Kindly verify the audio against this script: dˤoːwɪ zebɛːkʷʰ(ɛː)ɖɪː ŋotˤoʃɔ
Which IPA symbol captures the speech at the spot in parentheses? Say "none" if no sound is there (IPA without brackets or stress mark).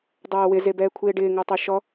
ɪː